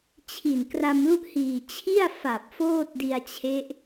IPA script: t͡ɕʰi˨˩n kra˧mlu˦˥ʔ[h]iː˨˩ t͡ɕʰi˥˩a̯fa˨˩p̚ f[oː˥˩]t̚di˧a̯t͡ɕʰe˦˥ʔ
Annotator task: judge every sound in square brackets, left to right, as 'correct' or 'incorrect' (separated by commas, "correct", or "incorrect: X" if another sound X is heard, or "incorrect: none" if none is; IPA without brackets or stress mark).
correct, correct